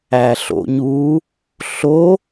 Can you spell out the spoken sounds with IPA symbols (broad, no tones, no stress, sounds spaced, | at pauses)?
æ ɬ o̰ ɲ u | ɬ o